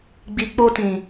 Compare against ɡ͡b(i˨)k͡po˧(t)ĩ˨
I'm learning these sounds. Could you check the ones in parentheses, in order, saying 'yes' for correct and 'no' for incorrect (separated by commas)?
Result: yes, yes